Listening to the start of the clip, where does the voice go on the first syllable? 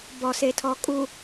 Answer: low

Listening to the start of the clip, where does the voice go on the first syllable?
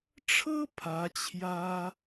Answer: high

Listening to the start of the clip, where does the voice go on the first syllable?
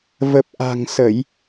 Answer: low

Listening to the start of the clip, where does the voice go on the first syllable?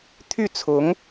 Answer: falling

